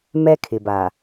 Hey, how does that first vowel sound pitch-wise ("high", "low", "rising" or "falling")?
high